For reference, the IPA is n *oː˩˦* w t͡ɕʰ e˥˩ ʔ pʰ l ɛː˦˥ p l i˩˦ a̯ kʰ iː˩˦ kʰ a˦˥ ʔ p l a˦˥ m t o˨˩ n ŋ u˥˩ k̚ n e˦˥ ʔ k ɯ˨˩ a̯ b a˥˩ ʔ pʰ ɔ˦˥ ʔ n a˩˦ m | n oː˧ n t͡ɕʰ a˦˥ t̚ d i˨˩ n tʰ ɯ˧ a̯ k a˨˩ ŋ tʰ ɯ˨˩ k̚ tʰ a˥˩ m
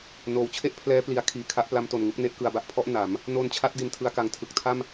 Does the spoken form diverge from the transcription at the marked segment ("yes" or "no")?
no